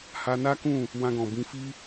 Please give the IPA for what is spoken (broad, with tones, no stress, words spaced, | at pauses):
ha˧ na˦kũ˦˨ | wã˧ɡɔ̃˨bĩ˧ fi˧